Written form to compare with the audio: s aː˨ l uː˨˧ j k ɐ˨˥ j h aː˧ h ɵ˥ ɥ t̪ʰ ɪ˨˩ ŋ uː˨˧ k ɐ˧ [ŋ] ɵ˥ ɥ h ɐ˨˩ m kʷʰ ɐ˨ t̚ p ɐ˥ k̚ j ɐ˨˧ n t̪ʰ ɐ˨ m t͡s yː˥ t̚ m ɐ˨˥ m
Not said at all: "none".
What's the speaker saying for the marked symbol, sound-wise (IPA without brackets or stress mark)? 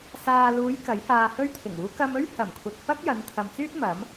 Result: m